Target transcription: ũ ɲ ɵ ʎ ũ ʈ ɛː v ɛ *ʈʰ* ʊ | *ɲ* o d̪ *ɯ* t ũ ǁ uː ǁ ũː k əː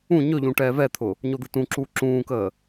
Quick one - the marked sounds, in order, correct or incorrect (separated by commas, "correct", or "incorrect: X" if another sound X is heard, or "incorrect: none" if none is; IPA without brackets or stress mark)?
incorrect: t̪ʰ, correct, correct